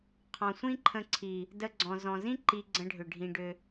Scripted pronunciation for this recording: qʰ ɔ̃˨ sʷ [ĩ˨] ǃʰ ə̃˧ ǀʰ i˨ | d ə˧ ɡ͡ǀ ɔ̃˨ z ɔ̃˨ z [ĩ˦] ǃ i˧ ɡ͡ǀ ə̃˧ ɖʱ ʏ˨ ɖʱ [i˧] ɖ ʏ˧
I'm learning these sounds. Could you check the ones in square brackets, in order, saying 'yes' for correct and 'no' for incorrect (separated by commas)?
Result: no, yes, no